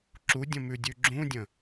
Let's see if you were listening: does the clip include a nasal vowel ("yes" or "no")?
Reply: yes